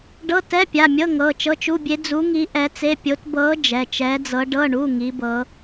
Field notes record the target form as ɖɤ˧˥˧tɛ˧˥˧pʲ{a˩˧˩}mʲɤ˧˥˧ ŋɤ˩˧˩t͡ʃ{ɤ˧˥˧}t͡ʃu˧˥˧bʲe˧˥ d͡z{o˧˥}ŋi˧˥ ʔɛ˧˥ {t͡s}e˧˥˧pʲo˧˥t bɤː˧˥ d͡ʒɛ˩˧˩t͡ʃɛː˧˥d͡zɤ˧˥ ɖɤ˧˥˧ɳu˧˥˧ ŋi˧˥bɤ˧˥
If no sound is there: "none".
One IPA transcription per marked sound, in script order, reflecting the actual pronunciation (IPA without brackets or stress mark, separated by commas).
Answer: a˩˧˩, ɤ˧˥˧, u˧˥, t͡s